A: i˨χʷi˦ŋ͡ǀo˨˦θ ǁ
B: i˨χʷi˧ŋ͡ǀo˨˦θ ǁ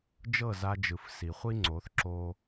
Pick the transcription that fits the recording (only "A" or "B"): A